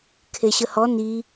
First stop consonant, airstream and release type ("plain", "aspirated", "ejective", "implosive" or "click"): aspirated